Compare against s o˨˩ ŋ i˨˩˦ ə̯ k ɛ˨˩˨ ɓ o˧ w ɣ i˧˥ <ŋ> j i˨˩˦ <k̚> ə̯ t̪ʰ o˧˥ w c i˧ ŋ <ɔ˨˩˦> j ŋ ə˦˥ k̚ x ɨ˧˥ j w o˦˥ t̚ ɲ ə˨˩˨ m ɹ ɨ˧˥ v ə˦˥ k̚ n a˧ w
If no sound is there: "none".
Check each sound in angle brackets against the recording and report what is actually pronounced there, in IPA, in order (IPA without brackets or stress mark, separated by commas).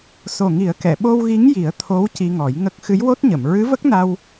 ŋ, none, ɔ˨˩˦